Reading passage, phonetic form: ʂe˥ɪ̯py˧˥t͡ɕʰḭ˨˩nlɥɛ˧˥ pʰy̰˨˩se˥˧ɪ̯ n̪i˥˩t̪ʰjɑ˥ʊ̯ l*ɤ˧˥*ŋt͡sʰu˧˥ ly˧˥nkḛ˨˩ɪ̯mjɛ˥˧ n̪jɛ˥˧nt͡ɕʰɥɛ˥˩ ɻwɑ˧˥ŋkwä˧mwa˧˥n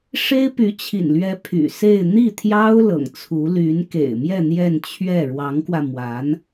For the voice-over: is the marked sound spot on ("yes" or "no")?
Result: no